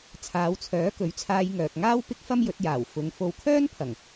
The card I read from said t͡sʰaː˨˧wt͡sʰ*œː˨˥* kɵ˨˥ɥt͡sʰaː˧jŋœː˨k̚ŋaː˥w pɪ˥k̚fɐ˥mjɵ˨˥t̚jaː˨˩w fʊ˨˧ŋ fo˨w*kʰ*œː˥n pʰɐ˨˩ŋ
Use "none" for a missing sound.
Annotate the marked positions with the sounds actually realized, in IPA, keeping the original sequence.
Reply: œː˨˥, kʰ

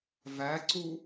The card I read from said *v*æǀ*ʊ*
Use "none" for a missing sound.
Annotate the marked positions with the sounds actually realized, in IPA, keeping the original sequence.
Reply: v, u

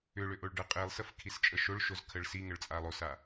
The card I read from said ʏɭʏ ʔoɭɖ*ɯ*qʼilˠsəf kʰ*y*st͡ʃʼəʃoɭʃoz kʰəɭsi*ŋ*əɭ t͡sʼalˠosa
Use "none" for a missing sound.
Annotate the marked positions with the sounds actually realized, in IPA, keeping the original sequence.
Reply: ɯ, i, ŋ

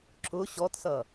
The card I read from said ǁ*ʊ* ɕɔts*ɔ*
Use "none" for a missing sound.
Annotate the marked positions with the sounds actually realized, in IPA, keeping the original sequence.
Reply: ʊ, ʌ

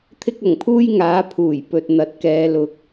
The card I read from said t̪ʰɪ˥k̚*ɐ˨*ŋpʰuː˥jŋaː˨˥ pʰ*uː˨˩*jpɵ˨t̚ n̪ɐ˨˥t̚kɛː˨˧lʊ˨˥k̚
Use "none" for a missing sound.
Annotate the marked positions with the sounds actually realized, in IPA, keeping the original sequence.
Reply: ɐ˨˩, uː˨˩

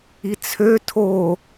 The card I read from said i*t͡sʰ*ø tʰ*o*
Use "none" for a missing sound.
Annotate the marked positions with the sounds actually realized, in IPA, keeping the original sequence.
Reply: t͡sʰ, o

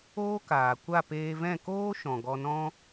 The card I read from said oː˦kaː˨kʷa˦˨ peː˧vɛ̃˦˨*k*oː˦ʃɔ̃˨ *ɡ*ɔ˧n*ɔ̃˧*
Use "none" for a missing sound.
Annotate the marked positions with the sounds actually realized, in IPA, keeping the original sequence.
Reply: k, ɡ, ɔ̃˦

